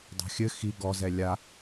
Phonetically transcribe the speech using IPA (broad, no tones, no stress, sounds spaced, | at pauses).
dˤ a̤ xʲ ɘ x i ɡ ɔ z ɛ lʲ a